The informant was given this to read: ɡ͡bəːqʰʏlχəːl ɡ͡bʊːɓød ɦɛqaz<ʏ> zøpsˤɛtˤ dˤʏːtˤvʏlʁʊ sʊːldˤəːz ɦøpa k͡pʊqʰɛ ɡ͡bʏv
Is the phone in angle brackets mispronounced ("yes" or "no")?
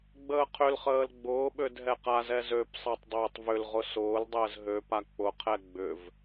yes